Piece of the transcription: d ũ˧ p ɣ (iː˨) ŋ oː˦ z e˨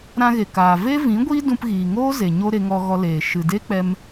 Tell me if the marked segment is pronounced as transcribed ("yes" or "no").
yes